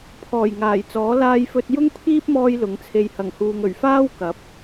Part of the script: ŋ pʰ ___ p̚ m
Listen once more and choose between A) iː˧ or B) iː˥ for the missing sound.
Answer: B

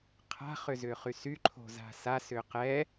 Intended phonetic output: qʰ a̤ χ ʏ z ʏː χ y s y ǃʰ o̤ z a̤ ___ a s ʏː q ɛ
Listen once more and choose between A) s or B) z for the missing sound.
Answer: A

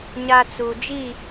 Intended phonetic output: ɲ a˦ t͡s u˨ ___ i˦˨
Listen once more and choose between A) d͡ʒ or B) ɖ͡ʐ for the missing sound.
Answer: A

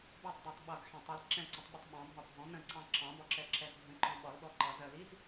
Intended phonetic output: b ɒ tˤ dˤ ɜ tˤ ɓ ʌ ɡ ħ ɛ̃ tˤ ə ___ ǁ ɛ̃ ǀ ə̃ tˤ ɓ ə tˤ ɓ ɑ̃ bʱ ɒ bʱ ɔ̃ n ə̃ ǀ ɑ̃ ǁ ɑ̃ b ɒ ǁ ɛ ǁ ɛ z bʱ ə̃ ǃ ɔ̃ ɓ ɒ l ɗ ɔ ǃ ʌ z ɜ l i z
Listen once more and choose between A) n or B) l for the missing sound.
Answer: B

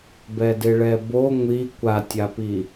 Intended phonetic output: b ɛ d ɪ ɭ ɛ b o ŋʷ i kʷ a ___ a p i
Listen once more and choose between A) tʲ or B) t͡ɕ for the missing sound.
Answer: A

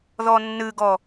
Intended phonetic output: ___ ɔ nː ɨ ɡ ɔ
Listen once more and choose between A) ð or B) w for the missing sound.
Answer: A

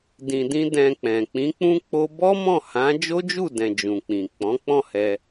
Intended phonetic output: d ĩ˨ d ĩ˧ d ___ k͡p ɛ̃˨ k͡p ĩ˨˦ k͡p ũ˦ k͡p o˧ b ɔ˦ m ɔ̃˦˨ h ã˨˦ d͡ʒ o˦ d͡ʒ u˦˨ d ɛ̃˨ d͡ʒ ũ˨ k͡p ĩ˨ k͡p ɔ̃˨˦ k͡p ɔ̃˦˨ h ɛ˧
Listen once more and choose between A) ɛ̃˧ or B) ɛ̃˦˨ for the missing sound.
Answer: A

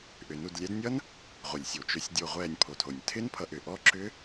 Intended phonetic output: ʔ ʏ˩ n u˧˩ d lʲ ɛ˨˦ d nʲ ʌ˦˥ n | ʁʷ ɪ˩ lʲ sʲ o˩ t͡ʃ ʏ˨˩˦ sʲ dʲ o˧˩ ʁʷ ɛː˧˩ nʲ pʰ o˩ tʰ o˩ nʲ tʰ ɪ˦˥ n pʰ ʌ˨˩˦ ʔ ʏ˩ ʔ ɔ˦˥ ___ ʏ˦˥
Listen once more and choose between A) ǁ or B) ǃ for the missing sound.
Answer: A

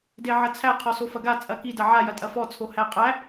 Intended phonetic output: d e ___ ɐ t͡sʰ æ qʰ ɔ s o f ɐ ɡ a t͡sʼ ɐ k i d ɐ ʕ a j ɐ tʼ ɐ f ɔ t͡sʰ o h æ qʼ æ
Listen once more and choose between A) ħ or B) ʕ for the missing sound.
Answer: B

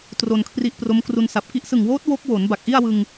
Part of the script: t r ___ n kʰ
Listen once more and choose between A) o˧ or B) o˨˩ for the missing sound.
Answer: A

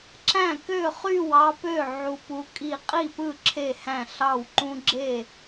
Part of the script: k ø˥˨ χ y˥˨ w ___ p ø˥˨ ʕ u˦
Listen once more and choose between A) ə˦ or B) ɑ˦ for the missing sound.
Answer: B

